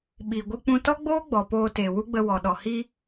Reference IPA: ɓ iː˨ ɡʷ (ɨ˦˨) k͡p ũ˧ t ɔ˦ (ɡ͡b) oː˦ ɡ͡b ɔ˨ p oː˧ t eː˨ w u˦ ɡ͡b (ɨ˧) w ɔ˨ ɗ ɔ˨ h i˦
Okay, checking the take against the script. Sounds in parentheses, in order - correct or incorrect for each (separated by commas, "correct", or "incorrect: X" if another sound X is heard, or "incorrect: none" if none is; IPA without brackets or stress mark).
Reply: incorrect: ɨ˧, correct, incorrect: ə˧